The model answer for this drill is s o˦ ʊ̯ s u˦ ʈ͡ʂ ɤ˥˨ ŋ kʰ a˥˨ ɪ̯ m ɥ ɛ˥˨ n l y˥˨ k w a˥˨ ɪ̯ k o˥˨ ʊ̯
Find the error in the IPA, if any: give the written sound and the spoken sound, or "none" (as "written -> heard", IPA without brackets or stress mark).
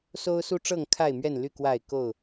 none